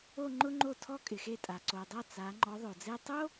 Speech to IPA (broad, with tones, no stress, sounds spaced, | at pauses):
o˥˧ ŋ͡ǃ ʊ˥ ŋ͡ǃ o˥˩ tʰ ɔ˥˧ kʼ ɪ˨ x e˥˩ tʼ a˨ ǀ o˨ dˤ a˥˩ t͡s a˨˦ ŋ͡ǃ ɔ˨˦ ðˤ o˨ d͡z e˥˧ tˤ o˥